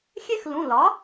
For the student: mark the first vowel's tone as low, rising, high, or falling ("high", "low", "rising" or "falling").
high